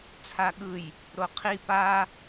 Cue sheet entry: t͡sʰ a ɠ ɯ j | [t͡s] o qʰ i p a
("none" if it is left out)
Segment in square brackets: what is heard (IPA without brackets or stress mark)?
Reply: ɾ